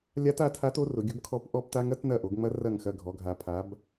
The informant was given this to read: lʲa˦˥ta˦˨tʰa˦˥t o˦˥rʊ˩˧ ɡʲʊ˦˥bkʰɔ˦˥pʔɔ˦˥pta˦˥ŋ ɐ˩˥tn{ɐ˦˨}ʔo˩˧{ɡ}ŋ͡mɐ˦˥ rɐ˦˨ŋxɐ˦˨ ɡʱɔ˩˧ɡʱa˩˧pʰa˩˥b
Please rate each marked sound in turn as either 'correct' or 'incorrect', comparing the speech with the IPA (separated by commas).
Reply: correct, correct